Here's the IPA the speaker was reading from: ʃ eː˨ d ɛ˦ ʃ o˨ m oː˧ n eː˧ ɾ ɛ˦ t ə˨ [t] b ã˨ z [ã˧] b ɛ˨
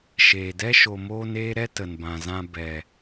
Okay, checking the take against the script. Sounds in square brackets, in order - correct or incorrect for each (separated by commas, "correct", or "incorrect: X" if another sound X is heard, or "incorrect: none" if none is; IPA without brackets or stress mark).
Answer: incorrect: n, correct